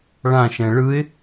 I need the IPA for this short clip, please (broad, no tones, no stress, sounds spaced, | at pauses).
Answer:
ɭ ã ʃ ɛ̃ ɭ ɯ ɪ̯